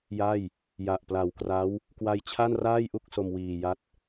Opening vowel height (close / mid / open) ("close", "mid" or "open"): open